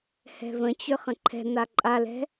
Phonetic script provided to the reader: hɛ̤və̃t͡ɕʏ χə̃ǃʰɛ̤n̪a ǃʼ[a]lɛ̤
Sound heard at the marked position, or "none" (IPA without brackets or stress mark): a